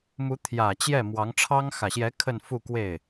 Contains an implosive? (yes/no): no